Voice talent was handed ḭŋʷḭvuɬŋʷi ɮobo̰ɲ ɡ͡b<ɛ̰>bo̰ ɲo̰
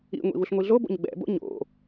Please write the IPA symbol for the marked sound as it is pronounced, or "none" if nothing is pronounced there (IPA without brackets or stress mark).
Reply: ɛ̰